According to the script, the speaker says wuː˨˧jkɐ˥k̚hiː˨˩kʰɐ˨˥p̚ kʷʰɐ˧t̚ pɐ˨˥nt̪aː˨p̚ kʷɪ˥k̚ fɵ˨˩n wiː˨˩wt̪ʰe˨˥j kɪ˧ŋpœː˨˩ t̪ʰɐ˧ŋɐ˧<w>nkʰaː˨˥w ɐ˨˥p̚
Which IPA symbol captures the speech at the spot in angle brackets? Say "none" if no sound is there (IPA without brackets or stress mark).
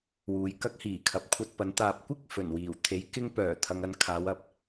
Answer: none